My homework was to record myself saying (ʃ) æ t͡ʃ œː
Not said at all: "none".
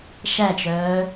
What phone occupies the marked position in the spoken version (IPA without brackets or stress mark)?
ʃ